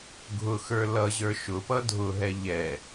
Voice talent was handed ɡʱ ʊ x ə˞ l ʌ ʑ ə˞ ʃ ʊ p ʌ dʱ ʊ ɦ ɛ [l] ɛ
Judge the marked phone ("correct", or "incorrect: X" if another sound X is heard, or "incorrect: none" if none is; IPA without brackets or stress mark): incorrect: ʎ